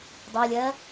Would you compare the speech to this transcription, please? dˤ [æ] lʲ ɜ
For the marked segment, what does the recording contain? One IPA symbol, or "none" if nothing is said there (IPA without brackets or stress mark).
ɜ